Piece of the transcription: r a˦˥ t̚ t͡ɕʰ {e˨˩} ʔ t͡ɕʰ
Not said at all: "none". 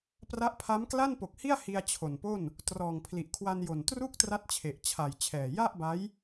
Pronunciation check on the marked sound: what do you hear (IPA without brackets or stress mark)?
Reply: e˨˩